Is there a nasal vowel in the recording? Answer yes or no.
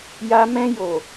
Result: yes